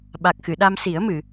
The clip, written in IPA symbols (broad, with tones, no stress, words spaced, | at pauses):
ɓa˨˩k̚xɨ˨˩˨ ɗa˧msi˨˩˦ə̯mɨ˨˩˨